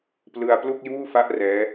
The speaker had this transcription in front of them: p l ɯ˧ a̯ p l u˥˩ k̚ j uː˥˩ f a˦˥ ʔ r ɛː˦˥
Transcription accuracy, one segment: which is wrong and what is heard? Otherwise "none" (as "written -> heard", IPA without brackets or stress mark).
none